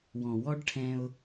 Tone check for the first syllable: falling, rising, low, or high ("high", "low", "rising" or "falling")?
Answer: low